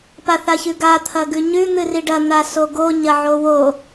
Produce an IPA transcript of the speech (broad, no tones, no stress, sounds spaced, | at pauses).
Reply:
p a θ a ç ʉ ɡ a t̪ʰ ɐ ɡ ʉ ɲ ʉ n̪ ɨ r i ɖ ɐ n̪ a s o ɡ o ɲ ɐ ʕ o w o